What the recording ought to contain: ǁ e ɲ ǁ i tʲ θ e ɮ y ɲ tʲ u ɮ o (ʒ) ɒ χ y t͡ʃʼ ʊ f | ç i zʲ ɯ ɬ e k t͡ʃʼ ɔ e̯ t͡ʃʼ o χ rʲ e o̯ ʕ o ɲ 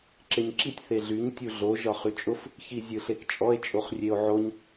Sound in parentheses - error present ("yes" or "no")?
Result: no